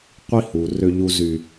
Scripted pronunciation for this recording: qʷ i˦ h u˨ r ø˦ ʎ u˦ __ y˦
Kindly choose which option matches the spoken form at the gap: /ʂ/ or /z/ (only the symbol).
z